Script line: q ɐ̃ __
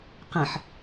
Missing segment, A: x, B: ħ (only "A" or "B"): B